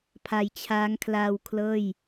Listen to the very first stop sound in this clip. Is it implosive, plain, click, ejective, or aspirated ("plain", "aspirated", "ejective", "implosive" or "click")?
aspirated